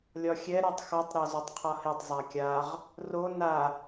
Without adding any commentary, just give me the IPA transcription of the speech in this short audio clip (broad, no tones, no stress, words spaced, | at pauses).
lʲɒxʲɛ ɾatˤxɒtˤ ɾɒzotˤqʰɒhetˤ zˤakʲaʁ | ro na